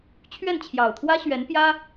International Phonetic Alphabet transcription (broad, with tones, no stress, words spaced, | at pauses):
t͡ɕʰɥɛ˥˩nt͡ɕʰjɑ˨˩ʊ̯t̪ʰwä˥ ɕɥɛ˧˥npjä˥